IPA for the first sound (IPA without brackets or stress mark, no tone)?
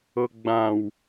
ɤ